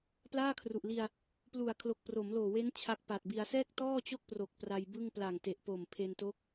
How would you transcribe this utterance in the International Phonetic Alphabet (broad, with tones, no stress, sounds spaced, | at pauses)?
p l aː˥˩ kʰ r u˨˩ ʔ l i˧ a̯ | p l u˨˩ a̯ kʰ l o˨˩ k̚ p r o˩˦ m l oː˨˩ w e˦˥ n t͡ɕʰ a˦˥ k̚ p a˨˩ t̚ b i˧ a̯ s ɛː˥˩ k̚ t ɔː˥˩ t͡ɕ o˥˩ k̚ p r o˨˩ k̚ p r a˧ j b ɯ˥˩ ŋ p l a˨˩ ŋ t e˨˩ ʔ p o˨˩ m pʰ e˧ n t o˦˥ k̚